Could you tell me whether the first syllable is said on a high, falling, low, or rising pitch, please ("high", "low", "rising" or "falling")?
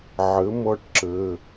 rising